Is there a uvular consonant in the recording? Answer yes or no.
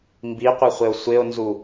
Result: yes